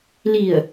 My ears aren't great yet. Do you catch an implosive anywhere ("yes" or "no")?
no